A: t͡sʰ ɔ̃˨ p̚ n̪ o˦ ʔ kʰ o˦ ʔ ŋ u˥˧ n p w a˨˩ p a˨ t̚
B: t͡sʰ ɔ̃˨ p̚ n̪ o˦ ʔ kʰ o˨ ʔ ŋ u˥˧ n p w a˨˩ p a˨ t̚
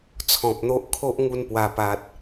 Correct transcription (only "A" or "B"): A